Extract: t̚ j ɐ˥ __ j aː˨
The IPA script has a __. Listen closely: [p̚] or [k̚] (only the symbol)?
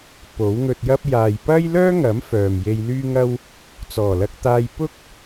p̚